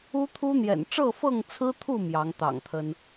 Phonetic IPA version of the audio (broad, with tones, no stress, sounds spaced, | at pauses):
u˦ t̪ʰ u˦ n̪ j ɛ̰˨˩ n ʈ͡ʂ ɤ˥˨ f ɤ˥˨ ŋ t͡sʰ ɹ̩˦ t̪ʰ u˥˨ m j ɑ˨˦ ŋ t̪ ɑ̰˨˩ ŋ t̪ʰ ə˦ n